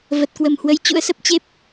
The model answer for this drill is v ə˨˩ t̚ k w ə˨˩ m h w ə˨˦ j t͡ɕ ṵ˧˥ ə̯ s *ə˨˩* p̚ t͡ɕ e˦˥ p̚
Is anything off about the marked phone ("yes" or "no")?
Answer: yes